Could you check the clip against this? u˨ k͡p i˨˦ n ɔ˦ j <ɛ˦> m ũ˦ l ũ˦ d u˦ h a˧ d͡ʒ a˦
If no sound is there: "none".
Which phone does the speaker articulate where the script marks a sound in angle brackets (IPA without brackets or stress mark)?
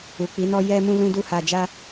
ɛ˦